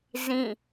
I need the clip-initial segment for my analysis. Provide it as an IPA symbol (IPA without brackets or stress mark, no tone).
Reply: z